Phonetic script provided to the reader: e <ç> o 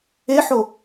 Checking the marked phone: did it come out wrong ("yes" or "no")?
yes